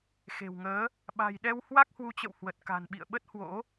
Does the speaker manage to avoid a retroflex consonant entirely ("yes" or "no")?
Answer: yes